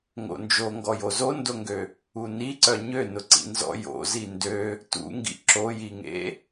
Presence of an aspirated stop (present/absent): absent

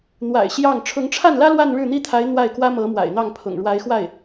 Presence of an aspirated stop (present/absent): present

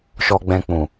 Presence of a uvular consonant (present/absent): absent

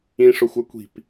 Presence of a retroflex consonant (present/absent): present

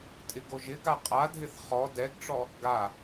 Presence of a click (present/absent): absent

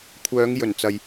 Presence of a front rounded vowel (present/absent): present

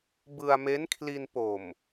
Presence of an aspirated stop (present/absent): present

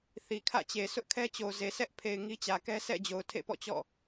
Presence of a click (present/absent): absent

